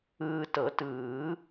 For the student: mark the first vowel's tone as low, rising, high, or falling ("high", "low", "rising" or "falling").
low